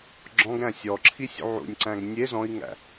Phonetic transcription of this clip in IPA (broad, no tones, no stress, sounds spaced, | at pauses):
ɡ͡ǁ ɔ̃ ɡ ɾ æ̃ sʲ ɔ ǁʰ i sʲ ṵ ʕ ṵ nʲ ǀ æ̃ ɡ nʲ e z ɔ̃ i̯ ŋ æ̰